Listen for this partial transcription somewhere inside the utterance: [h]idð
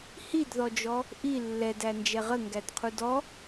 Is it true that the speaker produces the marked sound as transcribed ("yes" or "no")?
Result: yes